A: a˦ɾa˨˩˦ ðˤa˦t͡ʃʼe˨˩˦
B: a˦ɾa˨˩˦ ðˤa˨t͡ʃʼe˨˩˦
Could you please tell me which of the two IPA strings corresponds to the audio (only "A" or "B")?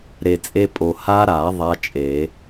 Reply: A